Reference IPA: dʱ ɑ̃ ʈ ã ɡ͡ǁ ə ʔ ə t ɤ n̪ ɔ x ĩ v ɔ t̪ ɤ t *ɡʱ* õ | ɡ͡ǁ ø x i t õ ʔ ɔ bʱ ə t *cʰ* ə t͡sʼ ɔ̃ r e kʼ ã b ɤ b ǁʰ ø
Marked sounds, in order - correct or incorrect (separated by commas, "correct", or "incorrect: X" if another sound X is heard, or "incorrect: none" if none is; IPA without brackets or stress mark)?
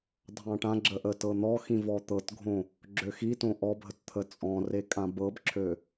correct, incorrect: t̪ʰ